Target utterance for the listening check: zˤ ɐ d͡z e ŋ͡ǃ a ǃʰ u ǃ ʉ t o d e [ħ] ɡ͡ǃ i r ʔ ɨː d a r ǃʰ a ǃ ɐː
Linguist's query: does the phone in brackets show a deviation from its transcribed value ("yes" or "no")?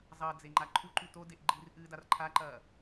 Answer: yes